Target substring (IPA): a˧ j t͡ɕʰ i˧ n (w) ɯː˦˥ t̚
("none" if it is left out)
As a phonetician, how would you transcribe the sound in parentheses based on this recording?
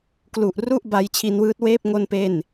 w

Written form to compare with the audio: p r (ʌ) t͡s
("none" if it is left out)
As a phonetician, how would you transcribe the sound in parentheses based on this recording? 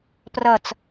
ʌ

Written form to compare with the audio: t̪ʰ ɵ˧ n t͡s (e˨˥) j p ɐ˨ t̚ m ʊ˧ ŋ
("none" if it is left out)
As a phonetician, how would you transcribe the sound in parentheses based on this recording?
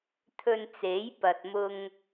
e˨˥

